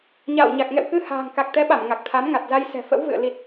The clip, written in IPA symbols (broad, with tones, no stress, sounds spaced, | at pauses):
ɲ a̰ː˧˨ w ɲ a˨˩ k̚ ŋ ɛ̰˧˨ w k ɨ˧ h a̤ː˨˩ ŋ k a˨˩ k̚ t̪ ɛ˨˦ ɓ a˧˩ m ŋ a˨˩ k̚ t̪ʰ a˨˦ m ŋ a˨˩ t̚ z a˧ j s ɛ̤˨˩ f ə̰˧˥ w v ɨ̰˧˨ ə̯ l i˨˩ t̚